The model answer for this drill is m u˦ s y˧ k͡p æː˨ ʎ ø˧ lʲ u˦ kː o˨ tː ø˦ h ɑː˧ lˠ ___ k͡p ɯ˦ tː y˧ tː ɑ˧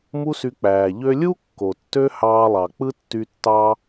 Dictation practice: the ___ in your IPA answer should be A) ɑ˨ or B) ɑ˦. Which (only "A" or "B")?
A